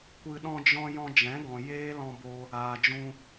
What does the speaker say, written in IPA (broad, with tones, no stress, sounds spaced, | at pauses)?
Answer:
kʷ ɨ˨ ɗ ɔ̃˧ d͡ʒ ɔ̃˧ j ɔ̃˧ d͡ʒ ɛ̃˨˦ ɡ ɔ̃˨ j eː˦ l ɔ̃˧ b o˧ | aː˨ d͡ʒ ũ˧